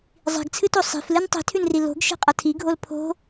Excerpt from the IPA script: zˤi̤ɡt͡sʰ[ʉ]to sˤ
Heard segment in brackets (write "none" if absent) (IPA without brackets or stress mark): ɨ